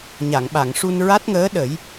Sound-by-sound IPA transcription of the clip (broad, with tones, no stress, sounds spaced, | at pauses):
ɲ a˨˩˨ ŋ ɓ a˨˩˨ ŋ ʂ u˧ n ɹ a˦˥ t̚ ŋ əː˧˥ ɗ ə˨˩˦ j